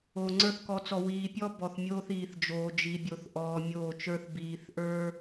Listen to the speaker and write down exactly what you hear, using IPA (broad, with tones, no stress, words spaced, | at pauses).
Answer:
o˨ŋ͡ǀə˞˦θ kɔ˨˦ t͡sɔ˨ wiː˨pʲɔ˦ bɔ˨θmʲoː˦θ iː˨θd͡ʒoː˨ d͡ʒi˨bʲo˨θ ʔɔː˨mʲoː˦˨t͡ʃə˞˦θ biː˨θʔə˞˦